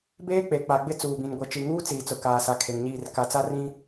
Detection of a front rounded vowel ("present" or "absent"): absent